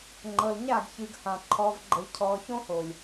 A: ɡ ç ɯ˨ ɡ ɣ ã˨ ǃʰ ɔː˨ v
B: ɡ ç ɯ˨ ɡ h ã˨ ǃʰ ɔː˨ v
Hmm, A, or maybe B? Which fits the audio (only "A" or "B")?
B